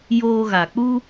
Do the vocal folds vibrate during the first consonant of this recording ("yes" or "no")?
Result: yes